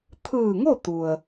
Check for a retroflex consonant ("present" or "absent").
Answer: absent